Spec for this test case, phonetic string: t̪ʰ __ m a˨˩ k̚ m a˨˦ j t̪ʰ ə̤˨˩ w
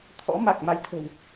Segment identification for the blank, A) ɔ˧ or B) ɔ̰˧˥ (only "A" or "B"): B